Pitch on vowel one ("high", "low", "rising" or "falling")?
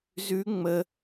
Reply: rising